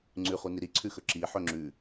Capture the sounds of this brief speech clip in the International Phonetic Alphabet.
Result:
ŋ͡ǀ ʉ χ u n i ɾ i ǀʰ ʉ x ɵ ǁ i ħ ɵ ŋ͡ǁ ʉ

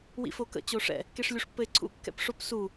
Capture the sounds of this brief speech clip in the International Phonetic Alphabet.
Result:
w ḭ f o k ə̰ t͡ɕ o ʂ ɛ̰ | k e ʂ lʲ u ʂ pː ɘ ɪ̯ ǀʰ ṵ kː ɛ̰ p ʂ o p s u

